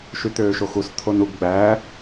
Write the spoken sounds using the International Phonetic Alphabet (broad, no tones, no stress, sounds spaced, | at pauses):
ʃ y t̪ øː ʃ o x u s t̪ʰ o n u ɡ ɡ͡b æː